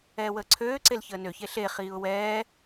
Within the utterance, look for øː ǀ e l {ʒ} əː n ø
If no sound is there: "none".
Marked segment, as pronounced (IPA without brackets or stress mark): ç